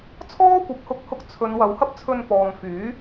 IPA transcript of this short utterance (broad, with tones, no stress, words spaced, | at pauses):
t͡sʰɔː˥kʷɐ˨p̚hʊ˧k̚hʊ˧k̚ t͡sʰɵ˨˧n wɐ˨˧whɐ˥p̚t͡sʰɵ˧n pɔː˨ŋfyː˨˥